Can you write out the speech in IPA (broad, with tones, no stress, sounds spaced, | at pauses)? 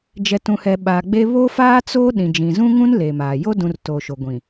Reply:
d͡ʒ ɛ˨ t ũ˨ h ɛ˨ ɓ aː˨ ɡ͡b e˦ β o˦ f aː˦ t͡s oː˦ ɗ ĩ˨ d͡ʒ ĩ˨ z ũ˦ ŋ ũ˦ n l e˨ m aː˨ j o˦ d ũ˨ r t oː˨ ʃ o˨ ɡʷ ĩ˨